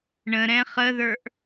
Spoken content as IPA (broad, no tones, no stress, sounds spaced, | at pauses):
ɳ ə̃ ɾ ɛ̃ χ ə ð ə˞ ʔ